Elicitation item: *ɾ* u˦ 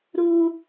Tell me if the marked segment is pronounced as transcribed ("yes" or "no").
yes